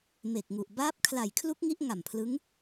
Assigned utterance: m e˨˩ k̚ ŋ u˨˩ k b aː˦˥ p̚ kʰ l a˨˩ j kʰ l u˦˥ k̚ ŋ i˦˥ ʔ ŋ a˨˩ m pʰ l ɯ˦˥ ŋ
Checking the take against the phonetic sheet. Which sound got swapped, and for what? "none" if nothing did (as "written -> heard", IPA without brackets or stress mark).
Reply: k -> ʔ